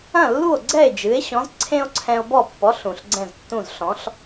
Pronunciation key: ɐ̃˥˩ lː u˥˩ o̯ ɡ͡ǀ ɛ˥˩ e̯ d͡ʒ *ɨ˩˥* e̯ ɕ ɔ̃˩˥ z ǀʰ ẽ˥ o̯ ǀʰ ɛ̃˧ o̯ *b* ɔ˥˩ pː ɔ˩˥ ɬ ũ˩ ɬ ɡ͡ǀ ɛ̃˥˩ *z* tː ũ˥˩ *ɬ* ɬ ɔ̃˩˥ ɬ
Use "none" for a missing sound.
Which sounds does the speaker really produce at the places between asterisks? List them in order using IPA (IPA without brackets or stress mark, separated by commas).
ɨ˩˥, b, z, z